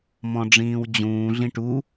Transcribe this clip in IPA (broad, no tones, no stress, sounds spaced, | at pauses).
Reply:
m ɔ̃ ɖ͡ʐ ĩː w d͡ʑ ũː ɮ ĩ ʈ u